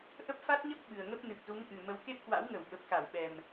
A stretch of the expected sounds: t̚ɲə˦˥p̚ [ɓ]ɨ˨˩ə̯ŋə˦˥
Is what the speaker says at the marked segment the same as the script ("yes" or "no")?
yes